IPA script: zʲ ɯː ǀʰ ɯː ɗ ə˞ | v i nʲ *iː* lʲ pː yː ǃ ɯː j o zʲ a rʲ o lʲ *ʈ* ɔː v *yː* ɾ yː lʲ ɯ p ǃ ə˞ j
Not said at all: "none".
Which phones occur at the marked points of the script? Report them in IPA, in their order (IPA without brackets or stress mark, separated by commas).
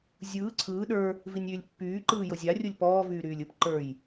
yː, p, yː